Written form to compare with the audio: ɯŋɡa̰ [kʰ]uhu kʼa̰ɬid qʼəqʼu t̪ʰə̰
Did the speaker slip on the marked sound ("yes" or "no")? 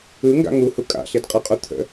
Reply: yes